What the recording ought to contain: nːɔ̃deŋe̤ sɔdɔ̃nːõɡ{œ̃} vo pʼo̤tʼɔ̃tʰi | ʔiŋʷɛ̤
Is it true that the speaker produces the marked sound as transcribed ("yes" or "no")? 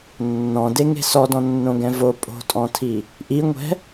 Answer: no